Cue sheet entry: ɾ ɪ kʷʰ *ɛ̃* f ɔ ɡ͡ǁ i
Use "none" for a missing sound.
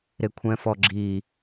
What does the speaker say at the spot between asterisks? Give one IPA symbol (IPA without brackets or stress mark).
ɛ̃